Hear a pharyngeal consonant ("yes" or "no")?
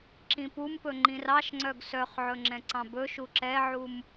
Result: yes